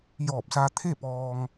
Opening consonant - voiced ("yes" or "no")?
yes